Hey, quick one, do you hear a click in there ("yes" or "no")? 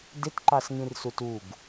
yes